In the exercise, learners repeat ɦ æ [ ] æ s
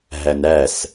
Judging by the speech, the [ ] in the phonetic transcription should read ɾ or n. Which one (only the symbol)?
n